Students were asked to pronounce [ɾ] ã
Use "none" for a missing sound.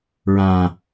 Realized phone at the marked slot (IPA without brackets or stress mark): ɹ